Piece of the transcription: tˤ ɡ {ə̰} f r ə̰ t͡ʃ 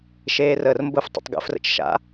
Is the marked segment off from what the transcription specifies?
no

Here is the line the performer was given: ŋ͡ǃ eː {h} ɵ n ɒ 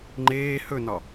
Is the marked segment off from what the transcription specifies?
no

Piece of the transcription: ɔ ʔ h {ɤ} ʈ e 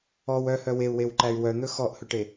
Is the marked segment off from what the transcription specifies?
yes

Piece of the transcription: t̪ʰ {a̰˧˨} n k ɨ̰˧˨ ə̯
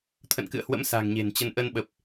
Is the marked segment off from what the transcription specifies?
yes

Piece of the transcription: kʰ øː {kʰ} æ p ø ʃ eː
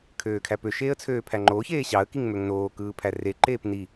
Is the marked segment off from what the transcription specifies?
no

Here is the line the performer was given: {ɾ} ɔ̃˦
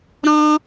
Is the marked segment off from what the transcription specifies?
no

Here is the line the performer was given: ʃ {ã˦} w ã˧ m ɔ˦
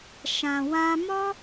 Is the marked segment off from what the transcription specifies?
yes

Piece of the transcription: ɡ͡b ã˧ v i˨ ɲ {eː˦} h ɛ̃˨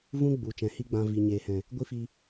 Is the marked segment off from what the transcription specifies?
yes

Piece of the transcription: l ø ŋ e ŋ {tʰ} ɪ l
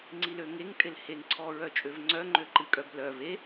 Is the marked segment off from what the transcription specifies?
yes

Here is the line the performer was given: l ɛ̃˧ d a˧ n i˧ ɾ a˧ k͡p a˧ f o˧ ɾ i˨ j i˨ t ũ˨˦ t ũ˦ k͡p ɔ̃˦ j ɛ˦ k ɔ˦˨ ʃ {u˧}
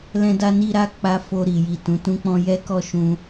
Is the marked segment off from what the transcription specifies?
yes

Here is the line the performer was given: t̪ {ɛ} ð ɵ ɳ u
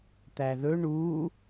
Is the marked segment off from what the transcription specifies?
yes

